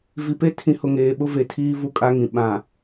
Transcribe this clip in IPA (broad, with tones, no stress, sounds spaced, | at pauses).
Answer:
v i˨ p e˦ tʰ ĩ˨˦ h ʊ˨ ŋ eː˨ ɓ ʊ˦ v e˨ tʰ iː˦ v u˦ kʼ a˦ ŋ ĩ˨ ɓ ã˨